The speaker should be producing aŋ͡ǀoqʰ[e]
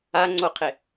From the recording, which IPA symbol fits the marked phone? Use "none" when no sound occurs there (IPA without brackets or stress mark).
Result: e